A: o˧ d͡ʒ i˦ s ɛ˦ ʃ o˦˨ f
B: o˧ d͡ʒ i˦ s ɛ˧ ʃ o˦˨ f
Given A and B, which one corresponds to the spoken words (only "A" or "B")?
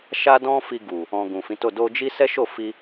A